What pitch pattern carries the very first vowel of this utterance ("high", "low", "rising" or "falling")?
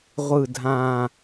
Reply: falling